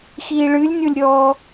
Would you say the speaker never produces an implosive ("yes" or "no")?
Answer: yes